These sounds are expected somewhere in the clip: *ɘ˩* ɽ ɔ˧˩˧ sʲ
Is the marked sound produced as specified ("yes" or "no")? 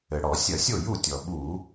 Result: yes